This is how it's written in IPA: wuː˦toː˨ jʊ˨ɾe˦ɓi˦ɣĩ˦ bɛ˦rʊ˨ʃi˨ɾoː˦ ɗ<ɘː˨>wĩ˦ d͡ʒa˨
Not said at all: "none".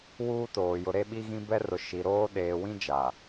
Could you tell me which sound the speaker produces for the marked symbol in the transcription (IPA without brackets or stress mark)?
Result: eː˨